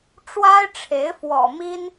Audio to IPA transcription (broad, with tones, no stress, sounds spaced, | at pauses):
ʈ͡ʂ w a˥ ɪ̯ ʈ͡ʂʰ e˧˥ ɪ̯ f w ɔ̰˨˩ m i˥ n